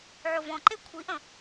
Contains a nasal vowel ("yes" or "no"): yes